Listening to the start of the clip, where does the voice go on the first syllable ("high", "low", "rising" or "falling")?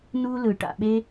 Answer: high